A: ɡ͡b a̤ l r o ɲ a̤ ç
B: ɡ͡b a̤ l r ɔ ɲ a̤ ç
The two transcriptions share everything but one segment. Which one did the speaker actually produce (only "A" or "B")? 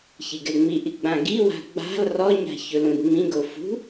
B